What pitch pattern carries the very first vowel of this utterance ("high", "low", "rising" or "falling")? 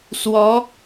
rising